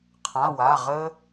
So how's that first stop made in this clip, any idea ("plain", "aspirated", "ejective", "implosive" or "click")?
aspirated